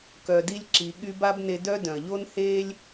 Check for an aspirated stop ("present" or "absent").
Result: absent